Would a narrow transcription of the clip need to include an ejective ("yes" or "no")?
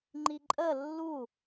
yes